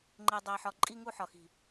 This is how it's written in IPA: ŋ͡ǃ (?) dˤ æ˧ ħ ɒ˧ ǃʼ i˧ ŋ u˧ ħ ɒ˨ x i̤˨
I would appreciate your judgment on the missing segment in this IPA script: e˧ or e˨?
e˧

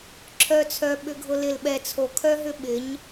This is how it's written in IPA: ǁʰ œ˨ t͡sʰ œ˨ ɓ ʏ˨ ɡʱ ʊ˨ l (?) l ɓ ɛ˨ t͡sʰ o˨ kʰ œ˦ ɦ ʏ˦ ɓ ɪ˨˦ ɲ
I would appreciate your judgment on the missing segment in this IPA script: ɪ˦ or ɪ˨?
ɪ˨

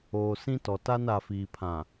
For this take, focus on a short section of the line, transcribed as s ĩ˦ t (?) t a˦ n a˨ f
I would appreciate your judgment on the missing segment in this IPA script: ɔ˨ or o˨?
ɔ˨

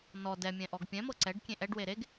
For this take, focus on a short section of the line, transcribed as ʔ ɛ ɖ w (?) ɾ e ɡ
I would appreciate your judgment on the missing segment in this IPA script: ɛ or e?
e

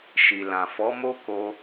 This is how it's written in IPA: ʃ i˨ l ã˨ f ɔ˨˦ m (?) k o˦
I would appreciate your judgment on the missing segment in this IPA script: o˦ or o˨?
o˦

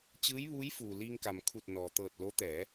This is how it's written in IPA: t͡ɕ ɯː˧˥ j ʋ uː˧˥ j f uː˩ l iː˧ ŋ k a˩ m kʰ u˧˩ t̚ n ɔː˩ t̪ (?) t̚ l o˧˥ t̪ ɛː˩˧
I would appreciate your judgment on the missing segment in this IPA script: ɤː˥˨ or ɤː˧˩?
ɤː˧˩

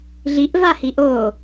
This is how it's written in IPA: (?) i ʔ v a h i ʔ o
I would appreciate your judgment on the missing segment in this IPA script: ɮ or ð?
ɮ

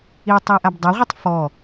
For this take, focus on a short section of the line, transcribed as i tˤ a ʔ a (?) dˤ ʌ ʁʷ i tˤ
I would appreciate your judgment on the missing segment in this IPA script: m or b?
b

